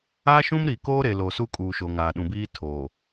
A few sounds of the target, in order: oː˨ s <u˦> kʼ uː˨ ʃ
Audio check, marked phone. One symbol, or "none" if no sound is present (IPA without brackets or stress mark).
u˦